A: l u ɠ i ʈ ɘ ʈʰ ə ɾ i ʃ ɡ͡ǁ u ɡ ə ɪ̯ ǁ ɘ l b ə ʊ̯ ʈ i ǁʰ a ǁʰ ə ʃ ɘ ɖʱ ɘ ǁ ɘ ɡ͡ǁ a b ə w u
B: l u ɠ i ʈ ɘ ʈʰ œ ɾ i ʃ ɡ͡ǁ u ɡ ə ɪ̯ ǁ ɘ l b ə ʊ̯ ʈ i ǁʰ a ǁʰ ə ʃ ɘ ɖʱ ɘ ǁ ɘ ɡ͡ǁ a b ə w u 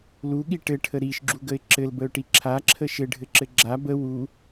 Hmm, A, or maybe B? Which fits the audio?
A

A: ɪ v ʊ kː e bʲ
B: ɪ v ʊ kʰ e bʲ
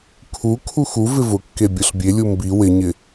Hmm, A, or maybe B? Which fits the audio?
A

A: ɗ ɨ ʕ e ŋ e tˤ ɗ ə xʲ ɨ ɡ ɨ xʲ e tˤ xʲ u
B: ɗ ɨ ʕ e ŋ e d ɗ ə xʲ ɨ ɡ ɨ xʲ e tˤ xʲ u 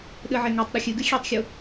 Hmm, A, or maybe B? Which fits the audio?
A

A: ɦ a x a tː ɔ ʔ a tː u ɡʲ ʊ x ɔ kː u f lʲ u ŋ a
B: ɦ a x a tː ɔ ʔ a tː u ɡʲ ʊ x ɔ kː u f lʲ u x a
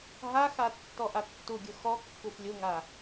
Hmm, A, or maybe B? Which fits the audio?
A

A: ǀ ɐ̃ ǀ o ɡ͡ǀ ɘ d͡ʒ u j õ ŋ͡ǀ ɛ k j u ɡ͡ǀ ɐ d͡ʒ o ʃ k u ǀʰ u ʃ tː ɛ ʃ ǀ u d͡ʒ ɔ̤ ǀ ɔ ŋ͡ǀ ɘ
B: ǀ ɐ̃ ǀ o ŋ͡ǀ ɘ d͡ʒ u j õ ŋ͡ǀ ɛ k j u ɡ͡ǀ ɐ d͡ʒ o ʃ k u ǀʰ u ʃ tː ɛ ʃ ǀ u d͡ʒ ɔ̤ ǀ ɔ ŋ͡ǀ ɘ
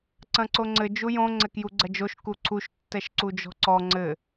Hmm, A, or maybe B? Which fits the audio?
B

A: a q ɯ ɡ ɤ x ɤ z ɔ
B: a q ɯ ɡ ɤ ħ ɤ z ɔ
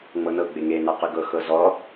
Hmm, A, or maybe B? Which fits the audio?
A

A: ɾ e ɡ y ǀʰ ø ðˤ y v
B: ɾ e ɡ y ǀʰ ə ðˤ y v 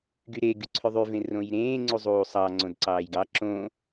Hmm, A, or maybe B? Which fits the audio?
A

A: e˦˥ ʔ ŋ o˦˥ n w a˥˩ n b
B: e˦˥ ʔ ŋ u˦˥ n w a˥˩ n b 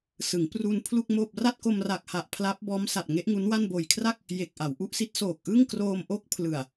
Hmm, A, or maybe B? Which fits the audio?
B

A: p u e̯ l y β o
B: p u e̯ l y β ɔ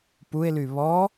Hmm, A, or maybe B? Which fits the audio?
B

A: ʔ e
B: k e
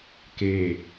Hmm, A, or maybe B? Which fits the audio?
B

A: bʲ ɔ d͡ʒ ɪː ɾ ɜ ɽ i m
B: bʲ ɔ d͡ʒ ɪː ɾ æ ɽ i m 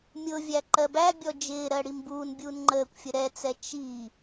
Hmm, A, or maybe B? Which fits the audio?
A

